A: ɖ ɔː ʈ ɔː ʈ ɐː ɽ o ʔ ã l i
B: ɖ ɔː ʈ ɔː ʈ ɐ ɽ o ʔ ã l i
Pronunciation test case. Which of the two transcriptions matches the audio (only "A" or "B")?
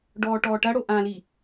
B